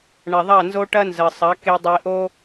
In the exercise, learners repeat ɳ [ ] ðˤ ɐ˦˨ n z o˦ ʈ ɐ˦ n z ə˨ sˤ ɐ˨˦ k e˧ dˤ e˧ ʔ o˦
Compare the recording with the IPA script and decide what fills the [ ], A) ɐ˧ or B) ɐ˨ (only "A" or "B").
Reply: B